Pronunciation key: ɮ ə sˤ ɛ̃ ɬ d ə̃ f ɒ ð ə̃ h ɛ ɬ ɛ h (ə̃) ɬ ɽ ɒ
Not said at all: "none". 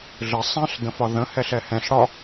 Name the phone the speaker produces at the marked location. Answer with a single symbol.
ɛ̃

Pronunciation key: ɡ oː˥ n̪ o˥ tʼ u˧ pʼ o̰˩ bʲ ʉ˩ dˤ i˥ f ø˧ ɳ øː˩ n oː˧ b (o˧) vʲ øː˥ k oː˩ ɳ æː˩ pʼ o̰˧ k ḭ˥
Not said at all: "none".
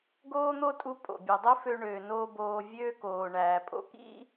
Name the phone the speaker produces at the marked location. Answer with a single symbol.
oː˧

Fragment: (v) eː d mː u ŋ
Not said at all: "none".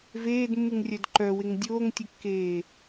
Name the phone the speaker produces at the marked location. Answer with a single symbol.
v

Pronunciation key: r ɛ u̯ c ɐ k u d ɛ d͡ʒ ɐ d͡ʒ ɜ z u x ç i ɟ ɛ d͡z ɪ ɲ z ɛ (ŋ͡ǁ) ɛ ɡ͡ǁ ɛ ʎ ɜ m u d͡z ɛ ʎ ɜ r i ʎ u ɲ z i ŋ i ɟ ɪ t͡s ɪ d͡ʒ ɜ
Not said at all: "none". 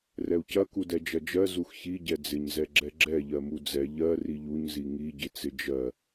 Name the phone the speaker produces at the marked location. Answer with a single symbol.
ɡ͡ǁ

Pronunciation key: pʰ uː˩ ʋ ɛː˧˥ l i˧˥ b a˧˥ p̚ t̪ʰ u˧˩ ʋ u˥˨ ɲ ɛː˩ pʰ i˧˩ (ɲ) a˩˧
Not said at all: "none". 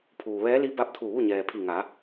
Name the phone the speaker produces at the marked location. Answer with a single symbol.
ŋ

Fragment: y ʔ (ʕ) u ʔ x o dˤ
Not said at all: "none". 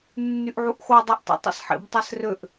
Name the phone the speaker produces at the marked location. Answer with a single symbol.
ʕ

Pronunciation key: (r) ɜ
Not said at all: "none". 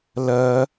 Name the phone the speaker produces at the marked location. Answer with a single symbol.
l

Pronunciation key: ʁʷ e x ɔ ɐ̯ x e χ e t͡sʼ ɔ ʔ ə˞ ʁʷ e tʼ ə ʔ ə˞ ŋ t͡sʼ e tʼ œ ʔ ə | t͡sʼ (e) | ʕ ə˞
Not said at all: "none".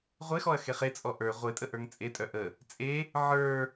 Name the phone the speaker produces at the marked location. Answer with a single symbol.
e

